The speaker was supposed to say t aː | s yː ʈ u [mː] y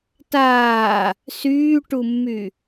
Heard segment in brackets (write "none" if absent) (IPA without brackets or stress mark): mː